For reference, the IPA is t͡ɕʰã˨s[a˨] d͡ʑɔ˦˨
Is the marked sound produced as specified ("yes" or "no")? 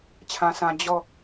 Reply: no